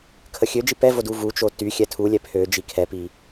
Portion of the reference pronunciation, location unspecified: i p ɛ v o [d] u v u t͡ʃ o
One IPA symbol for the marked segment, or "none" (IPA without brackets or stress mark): d